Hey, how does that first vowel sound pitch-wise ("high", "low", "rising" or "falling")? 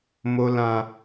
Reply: low